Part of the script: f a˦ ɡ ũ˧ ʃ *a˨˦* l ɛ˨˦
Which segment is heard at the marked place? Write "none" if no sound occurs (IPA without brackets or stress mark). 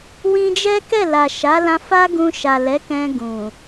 a˨